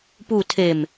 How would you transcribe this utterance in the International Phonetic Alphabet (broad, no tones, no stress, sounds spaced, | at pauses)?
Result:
p u tʰ e m